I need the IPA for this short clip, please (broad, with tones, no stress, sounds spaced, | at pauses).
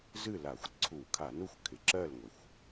z ɨ˥˨ l a˧˩˧ xʷ ǀʰ u˧˩˧ kʰ a˧˩˧ n u˥˨ xʷ kʰ ɪ˩ ǁ ɜ˥˨ l ŋʷ ɪ˩ xʷ